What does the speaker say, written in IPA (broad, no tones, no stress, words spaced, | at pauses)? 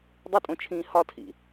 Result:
dˤɪtʼõt͡ʃʰĩː hɒtʰḭ